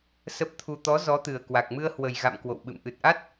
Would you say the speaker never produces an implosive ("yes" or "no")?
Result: no